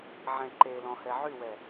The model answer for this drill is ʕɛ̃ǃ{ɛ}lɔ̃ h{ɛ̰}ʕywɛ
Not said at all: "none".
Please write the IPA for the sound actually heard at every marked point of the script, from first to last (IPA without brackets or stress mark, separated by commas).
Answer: e, ɛ